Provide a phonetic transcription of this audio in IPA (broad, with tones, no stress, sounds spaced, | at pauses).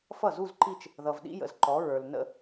f ʌ˥˩ z u˥˧ z ǃ i˥˧ t͡ʃ | ð ʌ˨ v ɗ ḭ˥ j ə̰˨ z ǃ ɔ˨˥ ɹ ə˞˨ l n ə̰˥˧